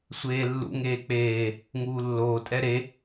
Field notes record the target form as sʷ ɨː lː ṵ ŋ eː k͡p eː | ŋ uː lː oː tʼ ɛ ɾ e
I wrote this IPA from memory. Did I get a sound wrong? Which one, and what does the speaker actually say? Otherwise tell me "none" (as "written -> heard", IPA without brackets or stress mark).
ɨː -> eː